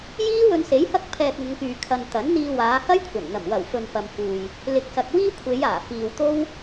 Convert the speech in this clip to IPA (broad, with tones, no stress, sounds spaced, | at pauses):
j iː˥ w ɵ˧ n s e˨˥ j h ɐ˥ k̚ pʰ ɛː˧ k̚ ŋ ʊ˨˧ ŋ k yː˨ kʰ ɐ˨ n t̪ ɐ˨˥ n n̪ iː˧ w aː˨˧ h ɐ˥ j kʷʰ ɐ˨˩ n n̪ ɐ˨˩ m w ɐ˨˩ w f ɵ˨ n p ɐ˧ m f uː˧ j | l ɪ˨˥ k̚ s ɐ˨ k̚ w iː˥ kʷʰ e˨˧ j aː˨˩ f iː˨ w t̪ o˥ w